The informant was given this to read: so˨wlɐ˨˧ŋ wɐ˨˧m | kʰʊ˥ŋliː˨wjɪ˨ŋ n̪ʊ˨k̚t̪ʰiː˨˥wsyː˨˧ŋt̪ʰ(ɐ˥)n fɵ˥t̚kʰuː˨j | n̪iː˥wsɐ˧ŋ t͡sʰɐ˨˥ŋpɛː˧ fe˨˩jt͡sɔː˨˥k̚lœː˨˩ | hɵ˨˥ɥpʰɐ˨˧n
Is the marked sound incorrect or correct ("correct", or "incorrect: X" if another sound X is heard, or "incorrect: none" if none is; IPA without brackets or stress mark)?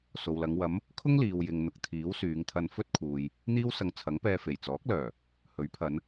incorrect: ɐ˧